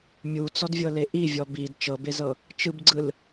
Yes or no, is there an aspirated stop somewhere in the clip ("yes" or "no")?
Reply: no